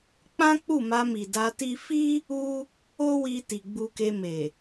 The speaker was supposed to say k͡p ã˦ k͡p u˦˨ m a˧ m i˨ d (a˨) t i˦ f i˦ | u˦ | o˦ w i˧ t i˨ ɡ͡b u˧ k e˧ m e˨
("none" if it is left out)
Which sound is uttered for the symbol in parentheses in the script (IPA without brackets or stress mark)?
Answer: a˧